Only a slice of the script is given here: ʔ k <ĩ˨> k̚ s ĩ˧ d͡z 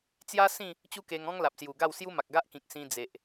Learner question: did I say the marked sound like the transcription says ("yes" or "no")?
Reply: yes